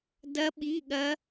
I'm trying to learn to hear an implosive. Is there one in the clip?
yes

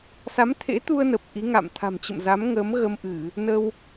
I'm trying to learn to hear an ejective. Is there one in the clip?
no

